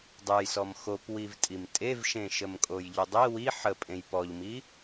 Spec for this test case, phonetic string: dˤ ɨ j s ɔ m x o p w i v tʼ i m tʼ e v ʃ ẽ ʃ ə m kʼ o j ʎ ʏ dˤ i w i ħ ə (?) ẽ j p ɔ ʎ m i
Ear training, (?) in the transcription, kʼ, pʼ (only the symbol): pʼ